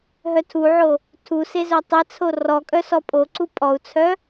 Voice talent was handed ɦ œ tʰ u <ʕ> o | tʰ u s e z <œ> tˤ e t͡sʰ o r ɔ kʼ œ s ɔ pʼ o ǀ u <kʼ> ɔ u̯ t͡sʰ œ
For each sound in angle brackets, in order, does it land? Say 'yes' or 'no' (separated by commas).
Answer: yes, yes, no